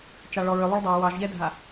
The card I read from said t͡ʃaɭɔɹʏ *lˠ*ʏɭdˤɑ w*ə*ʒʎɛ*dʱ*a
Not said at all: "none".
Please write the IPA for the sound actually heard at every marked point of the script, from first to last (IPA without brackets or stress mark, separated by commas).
lˠ, ɑ, dʱ